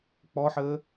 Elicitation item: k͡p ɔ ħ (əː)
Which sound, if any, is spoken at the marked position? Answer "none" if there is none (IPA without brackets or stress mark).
əː